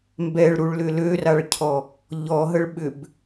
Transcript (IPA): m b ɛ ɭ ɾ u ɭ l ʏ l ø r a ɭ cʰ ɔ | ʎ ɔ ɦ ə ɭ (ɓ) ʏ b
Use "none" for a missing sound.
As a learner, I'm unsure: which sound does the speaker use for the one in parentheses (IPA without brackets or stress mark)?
ɓ